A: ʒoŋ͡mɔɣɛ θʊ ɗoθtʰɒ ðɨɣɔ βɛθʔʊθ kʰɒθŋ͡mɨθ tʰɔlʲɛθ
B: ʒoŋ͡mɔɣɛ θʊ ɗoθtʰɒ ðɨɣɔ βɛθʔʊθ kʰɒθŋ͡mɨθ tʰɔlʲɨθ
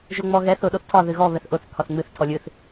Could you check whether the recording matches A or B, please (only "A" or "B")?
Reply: B